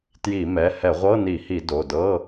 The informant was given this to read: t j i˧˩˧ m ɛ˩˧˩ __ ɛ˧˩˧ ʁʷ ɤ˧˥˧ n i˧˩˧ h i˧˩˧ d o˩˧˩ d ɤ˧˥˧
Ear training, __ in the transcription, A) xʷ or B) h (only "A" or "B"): B